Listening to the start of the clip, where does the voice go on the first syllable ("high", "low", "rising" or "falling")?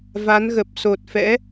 rising